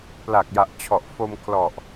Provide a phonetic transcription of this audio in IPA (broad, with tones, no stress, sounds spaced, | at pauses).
p l a˨˩ k̚ j a˨˩ ʔ t͡ɕʰ ɔ˨˩ ʔ f o˧ m kʰ l ɔ˨˩ ʔ